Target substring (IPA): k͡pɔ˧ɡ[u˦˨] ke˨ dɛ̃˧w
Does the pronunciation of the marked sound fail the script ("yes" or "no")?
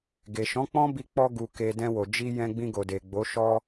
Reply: yes